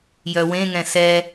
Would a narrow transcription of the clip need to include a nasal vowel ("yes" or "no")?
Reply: yes